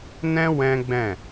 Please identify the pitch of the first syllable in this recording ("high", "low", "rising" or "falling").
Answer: high